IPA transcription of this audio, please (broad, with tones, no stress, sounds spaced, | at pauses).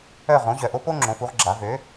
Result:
œ˦˨ ʁ õ˩˥ ʑ œ˨˩ ʔ o˥ p o˥ ŋ͡ǁ õ˩˧ f u˩˧ ʁ ɡ͡ǁ a˩˧ v ø˩˥